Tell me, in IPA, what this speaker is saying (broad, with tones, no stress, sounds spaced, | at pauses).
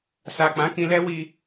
s a˨ k͡p ã˨˦ k ĩ˧ l ɛ˦ w i˧